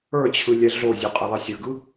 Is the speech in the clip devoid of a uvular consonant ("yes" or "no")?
no